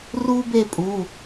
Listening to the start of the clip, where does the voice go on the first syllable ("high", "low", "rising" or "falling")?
high